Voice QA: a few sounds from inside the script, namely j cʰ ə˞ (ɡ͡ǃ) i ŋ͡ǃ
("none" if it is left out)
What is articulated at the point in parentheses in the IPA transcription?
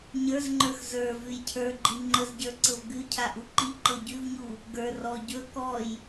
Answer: ɡ͡ǃ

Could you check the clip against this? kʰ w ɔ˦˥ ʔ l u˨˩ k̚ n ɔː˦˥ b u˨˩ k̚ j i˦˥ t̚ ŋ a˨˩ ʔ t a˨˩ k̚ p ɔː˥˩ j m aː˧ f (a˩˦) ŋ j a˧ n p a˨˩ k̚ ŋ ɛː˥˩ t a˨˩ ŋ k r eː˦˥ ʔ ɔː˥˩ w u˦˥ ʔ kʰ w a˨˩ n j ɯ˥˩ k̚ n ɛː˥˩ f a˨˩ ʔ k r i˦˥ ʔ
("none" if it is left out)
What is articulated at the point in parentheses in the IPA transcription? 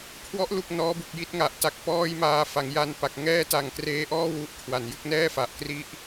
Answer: a˩˦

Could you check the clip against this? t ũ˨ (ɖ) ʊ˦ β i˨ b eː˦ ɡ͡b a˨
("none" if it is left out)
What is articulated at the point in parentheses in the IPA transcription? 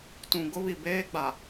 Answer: ɡ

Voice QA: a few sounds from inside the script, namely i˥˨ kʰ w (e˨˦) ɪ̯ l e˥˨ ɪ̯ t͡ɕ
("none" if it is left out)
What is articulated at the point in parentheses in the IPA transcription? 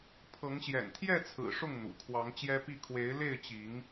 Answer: e˨˦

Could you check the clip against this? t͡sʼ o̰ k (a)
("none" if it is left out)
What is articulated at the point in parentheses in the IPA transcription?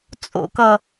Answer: ʌ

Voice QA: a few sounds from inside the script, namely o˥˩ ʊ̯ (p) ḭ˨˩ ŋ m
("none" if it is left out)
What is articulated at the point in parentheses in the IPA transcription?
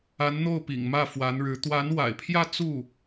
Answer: p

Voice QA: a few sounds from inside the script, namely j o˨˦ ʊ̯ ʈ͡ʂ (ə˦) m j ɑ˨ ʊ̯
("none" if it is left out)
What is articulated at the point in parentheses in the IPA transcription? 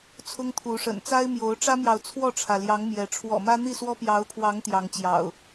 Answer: ä˦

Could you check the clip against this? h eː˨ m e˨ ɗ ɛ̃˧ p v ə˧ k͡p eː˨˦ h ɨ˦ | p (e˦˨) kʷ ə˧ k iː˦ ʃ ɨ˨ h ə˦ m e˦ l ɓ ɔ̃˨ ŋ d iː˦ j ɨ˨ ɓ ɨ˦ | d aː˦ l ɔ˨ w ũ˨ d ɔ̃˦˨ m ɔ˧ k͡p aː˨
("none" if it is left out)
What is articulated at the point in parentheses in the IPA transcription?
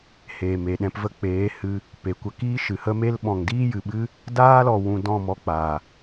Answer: e˨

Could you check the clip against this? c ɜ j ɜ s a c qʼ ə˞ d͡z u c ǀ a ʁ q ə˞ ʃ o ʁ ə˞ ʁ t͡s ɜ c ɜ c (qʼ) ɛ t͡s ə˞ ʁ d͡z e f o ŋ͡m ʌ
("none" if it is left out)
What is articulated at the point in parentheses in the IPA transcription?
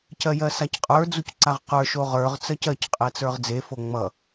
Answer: qʼ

